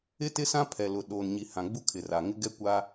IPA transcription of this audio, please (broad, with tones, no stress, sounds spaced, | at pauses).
ɪ˦ t ɪ˦ s ã˦ pʰ ɛ˨ l ʊ˨ ɗ oː˨ n ɲ i˨ h ã˨ ɡ͡b u˦ kʰ ɪ˨ r a˨ ŋ ɪ˦ ɡ ɛ˦ kʷ a˦